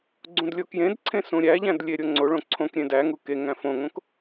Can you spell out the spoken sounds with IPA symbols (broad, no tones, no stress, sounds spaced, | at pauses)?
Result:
ɡ͡ǀ ũ d lʲ o k j ẽ d ǀʰ ẽ s ũ ɾʲ æ ʎ æ̃ d lʲ e ɾʲ o ŋ͡ǀ o ɭ õ ǀʰ õ k ɾʲ ẽ d æ ŋ u k e ŋ æ̃ f õ ŋ õ k